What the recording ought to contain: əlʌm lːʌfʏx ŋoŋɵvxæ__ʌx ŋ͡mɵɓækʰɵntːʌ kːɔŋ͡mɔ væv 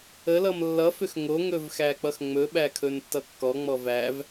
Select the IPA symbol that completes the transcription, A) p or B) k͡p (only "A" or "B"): B